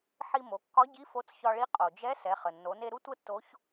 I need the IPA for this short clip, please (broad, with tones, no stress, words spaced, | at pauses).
ħi˧mo˩˧kːɒ˧˥ɟi˧˥ fo˧˥t͡sçɒ˧ɭi˧˥ qʼo˩d͡ʒɛ˧˥ sɛ˩˧χə˩nːo˩˧ne˧ ɾu˥tʷə˥tːo˧˥ç